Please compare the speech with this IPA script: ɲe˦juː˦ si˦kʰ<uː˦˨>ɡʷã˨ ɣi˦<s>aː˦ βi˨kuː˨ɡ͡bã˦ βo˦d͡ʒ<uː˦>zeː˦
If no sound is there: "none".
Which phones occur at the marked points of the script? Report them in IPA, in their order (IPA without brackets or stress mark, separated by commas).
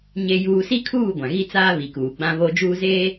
uː˦˨, t͡s, uː˦